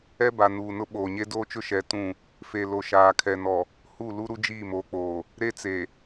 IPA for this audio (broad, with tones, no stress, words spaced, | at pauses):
ɛ˦ba˨ nuː˨nʊ˦ ɓoː˨ɲe˦ doː˦t͡ʃʊ˦ʃɛ˨˦ tũ˦˨ | fe˨lo˨ ʃaː˨kʰɛ˨nɔ˨ | hu˦˨ lu˦ɾu˦ d͡ʒiː˦˨moː˨k͡poː˨ | ɾe˦t͡se˨